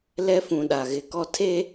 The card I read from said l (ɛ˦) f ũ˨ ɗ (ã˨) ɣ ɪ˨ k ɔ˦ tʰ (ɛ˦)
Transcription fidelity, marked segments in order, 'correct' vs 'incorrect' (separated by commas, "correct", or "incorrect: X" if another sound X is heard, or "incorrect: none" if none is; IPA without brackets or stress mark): correct, incorrect: a˨, incorrect: e˦